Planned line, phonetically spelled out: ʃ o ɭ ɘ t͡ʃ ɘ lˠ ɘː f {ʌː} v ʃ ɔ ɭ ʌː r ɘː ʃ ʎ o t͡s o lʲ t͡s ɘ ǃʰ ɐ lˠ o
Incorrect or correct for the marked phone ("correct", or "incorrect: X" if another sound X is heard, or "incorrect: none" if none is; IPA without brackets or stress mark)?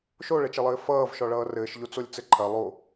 correct